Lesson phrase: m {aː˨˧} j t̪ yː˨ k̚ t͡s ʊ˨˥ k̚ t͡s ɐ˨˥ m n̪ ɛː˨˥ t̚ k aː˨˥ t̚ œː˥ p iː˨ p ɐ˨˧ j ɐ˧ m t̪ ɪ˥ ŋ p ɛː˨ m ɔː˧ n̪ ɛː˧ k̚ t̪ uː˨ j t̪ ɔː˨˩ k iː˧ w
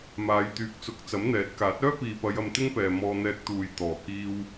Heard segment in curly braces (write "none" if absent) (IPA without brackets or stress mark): aː˨˧